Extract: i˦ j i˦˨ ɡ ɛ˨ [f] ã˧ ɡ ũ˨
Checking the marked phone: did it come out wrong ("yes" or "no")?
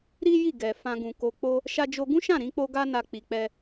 no